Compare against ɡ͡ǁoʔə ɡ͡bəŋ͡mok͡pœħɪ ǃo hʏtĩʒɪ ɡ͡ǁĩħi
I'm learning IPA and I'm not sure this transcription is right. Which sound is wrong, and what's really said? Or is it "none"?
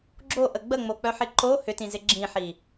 ʒ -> z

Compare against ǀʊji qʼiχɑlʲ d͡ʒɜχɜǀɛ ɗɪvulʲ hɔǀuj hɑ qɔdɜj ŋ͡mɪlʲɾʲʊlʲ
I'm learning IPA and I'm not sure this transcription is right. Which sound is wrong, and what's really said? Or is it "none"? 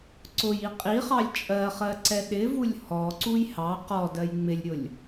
d͡ʒ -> t͡ʃʼ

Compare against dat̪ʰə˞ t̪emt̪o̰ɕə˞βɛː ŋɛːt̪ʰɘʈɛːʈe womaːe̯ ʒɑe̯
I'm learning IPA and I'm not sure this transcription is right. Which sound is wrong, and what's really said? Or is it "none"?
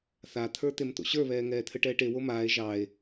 d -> θ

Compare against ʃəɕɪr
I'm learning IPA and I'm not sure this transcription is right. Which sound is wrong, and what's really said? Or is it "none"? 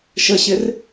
none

